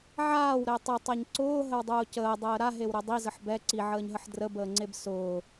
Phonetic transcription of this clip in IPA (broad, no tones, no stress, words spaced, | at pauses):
ʕaːwɾɛ tˤətˤɛɲ ǀʊːɦəwdˤʊː cəːdˤəː ɾaɦewɾœ dˤizəħ bɛ ǀiʕəːɲɦəħ drəbəːŋ͡ǀeb sʊː